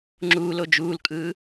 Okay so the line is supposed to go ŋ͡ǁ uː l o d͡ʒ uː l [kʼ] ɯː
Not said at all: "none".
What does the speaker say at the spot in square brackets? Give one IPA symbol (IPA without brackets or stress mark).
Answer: kʼ